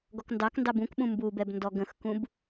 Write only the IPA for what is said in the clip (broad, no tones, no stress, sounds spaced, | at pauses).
ɡ ɔ k n d ɑ k n d ɑ b ũ k ɓ ũ m b u b ɛ b n d ɔ ɡ ə̃ x k ũ b